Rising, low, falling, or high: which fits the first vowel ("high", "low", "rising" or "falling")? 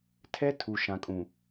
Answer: high